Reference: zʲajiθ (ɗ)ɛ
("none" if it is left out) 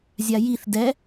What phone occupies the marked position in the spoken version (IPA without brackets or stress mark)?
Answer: d